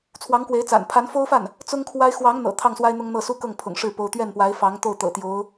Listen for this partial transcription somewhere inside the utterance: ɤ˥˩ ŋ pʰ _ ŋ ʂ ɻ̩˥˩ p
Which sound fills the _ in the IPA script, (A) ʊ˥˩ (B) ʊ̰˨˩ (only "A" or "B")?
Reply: B